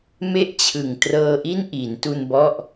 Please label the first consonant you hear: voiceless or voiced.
voiced